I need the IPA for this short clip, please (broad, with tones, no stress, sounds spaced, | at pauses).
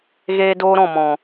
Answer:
ɣ eː˦ d oː˦ ɾ ɔ̃˦˨ m ɔ̃˨